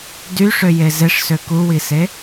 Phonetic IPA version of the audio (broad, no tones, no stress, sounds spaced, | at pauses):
d y ʂ ø j e z e ʂ s ø k u w i s e